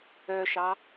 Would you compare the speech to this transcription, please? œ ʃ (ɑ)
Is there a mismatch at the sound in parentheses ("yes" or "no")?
no